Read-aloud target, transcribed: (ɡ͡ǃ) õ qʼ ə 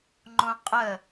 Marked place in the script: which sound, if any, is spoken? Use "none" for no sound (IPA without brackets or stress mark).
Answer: ŋ͡ǃ